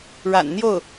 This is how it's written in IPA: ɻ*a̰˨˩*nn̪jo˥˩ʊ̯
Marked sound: correct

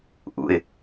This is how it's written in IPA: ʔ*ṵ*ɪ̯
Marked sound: correct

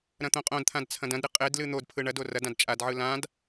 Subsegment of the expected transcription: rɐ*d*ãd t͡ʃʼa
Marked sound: correct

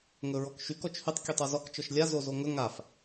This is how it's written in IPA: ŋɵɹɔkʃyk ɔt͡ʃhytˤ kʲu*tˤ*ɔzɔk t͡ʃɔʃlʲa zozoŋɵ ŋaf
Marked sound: correct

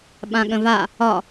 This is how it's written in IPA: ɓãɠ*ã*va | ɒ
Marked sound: incorrect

